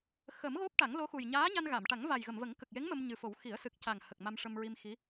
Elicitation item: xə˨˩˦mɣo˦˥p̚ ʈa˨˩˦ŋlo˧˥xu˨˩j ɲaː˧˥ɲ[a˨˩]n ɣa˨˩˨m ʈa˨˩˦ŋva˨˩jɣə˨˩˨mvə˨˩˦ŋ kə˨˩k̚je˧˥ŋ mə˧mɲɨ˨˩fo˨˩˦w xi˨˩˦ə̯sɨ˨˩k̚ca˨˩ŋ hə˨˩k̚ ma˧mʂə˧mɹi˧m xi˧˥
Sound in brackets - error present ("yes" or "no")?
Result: yes